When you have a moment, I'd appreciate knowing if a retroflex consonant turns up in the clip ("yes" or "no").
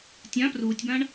yes